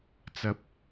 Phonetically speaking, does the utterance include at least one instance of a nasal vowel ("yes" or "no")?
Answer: no